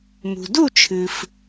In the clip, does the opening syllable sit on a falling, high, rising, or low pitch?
low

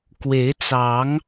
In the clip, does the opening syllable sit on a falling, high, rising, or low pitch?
rising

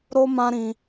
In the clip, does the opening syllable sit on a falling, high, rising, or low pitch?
high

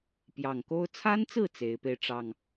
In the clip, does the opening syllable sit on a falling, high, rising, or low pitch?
low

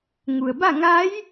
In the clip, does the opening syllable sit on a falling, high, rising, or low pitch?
low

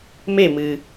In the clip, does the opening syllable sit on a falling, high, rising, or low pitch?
falling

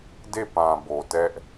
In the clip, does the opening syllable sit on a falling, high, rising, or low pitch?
falling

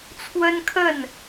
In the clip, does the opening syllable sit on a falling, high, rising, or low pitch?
high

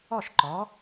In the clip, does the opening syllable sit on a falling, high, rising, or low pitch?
falling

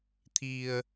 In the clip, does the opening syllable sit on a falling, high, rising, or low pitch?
low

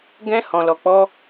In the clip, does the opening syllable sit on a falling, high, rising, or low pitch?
high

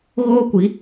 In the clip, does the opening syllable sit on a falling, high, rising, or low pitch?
high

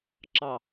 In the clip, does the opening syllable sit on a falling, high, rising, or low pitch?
low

